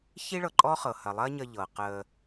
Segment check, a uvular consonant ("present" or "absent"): present